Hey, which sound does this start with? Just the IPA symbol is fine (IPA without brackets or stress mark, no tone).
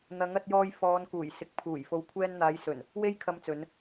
n̪